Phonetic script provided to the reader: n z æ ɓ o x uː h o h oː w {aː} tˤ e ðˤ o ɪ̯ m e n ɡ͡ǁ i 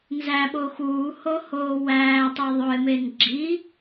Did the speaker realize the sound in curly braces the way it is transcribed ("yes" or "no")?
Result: no